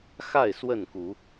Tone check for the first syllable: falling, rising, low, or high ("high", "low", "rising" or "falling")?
falling